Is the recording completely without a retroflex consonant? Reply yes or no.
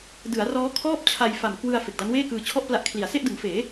yes